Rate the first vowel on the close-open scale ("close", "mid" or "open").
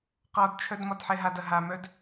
open